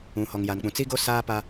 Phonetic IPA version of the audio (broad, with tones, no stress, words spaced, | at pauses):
ũ˨ hɔ˨ŋja˨nk͡pũ˨ t͡si˦ɡo˦ saː˦pa˦